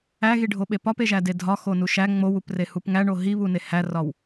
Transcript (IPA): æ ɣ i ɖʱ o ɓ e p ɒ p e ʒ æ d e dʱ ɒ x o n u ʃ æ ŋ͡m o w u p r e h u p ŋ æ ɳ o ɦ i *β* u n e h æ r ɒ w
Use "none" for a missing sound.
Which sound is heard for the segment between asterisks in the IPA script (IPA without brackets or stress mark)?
β